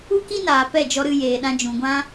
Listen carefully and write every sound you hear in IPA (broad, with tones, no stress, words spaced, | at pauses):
u˦ki˦naː˨ pɛ˦˨d͡ʒɔ˧ɾɨ˧ jeː˨ɗã˧d͡ʒũ˨ɡʷã˦